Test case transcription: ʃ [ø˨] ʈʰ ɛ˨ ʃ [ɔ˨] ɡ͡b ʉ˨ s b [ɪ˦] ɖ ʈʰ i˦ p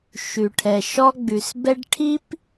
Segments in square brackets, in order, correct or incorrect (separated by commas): incorrect, incorrect, incorrect